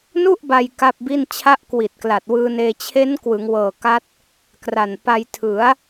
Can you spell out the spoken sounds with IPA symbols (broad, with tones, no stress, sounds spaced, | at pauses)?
n u˥˩ ʔ b a˧ j k a˥˩ p̚ b i˥˩ n t͡ɕʰ a˦˥ ʔ k w i˨˩ t̚ k l a˨˩ t̚ w ɯː˧ n eː˧ t͡ɕʰ e˦˥ n k w ɯ˩˦ ŋ w ɤː˨˩ k a˦˥ t̚ | k r a˨˩ n p a˧ j tʰ ɯ˩˦ a̯